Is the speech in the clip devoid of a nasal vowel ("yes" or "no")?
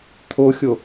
yes